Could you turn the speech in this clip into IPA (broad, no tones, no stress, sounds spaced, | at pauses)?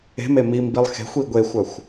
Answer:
e̤ m e m i m b i lˠ x e̤ xʷ i ɡʷ e xʷ œ xʷ